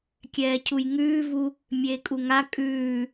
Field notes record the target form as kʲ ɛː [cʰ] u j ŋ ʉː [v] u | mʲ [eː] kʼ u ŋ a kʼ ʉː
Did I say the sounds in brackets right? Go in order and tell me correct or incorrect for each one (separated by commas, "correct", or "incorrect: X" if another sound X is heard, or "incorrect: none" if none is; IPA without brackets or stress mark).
correct, correct, correct